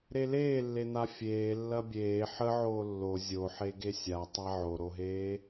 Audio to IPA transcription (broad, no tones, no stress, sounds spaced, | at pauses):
ɾ e l eː lː e n̪ a fʲ eː lː ɐ bʲ eː ħ ə ʕ oː lː o zʲ o ħ e ɡ e sʲ a tˤ a ʕ o ɾ o ɦ eː